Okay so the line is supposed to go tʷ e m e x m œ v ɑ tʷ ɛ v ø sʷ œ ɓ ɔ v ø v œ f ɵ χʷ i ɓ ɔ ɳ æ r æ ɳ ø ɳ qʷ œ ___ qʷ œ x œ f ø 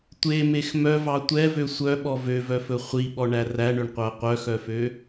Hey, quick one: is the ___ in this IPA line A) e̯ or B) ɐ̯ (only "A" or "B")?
B